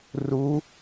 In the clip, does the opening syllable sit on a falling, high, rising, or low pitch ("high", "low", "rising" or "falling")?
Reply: rising